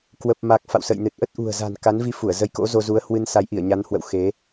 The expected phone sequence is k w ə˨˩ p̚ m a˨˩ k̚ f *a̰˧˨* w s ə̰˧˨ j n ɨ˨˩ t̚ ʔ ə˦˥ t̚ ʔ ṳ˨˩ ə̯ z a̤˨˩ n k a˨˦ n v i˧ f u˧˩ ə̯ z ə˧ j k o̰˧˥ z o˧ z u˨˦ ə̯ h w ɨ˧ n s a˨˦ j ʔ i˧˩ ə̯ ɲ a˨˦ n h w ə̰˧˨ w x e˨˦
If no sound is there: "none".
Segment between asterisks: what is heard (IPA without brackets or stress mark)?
a̰˧˨